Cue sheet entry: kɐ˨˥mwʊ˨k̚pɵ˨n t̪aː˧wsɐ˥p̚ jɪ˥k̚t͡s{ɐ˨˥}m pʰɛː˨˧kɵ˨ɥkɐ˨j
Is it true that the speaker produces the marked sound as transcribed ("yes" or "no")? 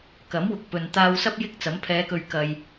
yes